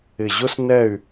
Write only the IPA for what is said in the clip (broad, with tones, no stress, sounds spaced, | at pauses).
ɪ˧˩ ʑ ʊ˥ s n ɛ˥˧ y̯